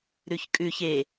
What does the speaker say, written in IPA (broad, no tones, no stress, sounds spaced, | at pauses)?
ɾ ʉ ç kʼ ʉ ç e